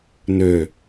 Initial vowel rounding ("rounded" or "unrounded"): rounded